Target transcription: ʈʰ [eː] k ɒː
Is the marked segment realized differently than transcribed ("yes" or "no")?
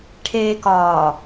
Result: no